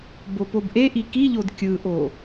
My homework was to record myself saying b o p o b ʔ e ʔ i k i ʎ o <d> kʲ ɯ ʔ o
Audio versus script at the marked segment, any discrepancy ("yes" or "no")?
no